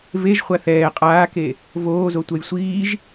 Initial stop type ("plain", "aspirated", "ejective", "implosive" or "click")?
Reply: ejective